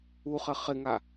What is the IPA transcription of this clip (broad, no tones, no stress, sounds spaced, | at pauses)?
u χ ɘ χ ɪ ŋ a